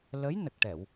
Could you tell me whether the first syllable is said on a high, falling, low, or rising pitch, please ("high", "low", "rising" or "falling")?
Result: rising